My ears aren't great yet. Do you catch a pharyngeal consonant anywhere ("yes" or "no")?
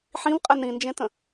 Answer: yes